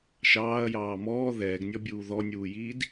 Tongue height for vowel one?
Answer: low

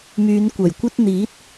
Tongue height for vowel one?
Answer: high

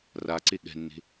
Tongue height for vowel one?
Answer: low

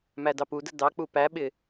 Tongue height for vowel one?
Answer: low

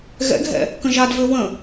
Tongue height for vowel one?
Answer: mid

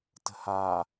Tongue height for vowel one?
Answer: mid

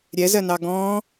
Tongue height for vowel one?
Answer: mid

